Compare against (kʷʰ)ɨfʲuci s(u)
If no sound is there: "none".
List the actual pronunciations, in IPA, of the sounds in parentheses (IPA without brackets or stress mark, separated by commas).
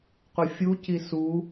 qʷ, u